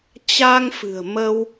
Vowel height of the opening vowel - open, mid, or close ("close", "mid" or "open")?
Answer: open